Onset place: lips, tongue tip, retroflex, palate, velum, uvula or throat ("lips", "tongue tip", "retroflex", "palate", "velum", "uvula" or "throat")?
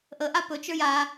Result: throat